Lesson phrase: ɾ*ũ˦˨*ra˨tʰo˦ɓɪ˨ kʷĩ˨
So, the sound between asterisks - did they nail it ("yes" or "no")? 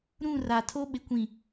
yes